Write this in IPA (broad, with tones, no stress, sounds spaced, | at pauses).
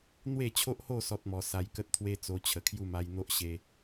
n̪ w e˥˧ t͡ɕʰ o˦ ʔ h o˥˧ s ɔ˦ t̚ m ɔ˧ s a˧ j k ə˦ t̚ t̪ʰ w e˦ t͡s o˧ t͡ɕʰ ə˨˩ kʰ j u˥˧ m a˧ j n̪ o˦ ʔ ɕ e˧